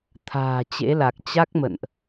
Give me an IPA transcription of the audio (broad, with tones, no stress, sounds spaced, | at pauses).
t̪ʰ a̤ː˨˩ t͡ɕ ḛ˧˥ l a˨˩ k̚ t͡ɕ a˦˥ k̚ m ə̰˧˨ n ʔ